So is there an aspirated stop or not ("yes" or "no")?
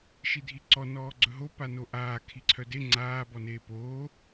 yes